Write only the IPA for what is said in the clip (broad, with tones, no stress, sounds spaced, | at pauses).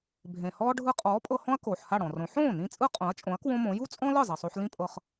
bʱ ẽ˩ h ɔː˥ ɖʱ ɯ˧ qʼ ɔː˩˥ pʼ ɤ˧ h ɔ̃˥ ɐ̯ k oː˩ ħ h a˥˩ ɽ ɔ̃˩ r õ˩˥ ħ õː˥˩ n ĩ˧ t͡sʼ ɯ˥ qʼ õ˩˥ ɐ̯ t͡ʃʼ õ˩˥ ɐ̯ k w õ˥ m õ˩˥ j u˥ t͡sʼ ɔ̃˥ l ɯ˥˩ zˤ e˩ sˤ o˧ ħ l ĩ˥ pʼ ɤ˧ χ